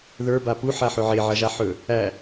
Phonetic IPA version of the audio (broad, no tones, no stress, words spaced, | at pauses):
ðə˞ bapu ħaħɵʕe ʕɐʒaħɵ | æ